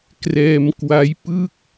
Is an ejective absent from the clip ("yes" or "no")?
yes